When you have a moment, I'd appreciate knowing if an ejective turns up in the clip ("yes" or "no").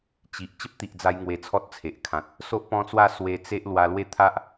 no